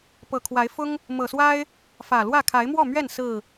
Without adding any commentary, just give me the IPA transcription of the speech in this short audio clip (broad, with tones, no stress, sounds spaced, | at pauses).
p ɤ˨˩ kʰ w a˨˦ ɪ̯ f ʊ˦ ŋ | m ɤ˨˩ s w a˦ ɪ̯ | f ä˨˩ l w ä˥˨ kʰ a˨˦ ɪ̯ m w ɔ˥˨ m ɥ ɛ˥˨ n s ɹ̩˥˨